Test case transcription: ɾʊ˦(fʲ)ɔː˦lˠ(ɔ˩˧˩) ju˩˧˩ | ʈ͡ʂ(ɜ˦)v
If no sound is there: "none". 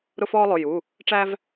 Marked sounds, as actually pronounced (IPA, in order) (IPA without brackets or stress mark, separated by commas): f, ʊ˩˧˩, æ˦